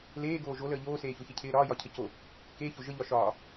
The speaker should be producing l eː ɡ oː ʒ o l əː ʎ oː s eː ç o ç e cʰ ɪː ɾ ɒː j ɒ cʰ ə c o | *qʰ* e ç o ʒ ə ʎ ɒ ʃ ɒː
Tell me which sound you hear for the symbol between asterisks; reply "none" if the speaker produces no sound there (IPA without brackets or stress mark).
k